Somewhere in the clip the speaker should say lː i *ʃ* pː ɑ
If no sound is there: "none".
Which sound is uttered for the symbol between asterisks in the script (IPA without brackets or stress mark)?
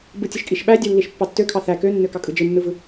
ʃ